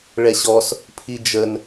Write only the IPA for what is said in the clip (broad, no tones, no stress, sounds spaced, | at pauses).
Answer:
ɭ ɛ ɕ ɔ s | pʰ i d͡ʒ ə n